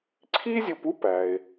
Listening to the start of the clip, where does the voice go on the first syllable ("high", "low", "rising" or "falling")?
high